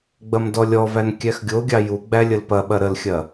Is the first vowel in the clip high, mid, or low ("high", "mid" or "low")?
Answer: low